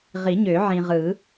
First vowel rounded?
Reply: no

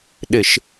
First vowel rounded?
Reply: no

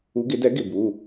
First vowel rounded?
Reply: yes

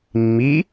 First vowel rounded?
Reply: no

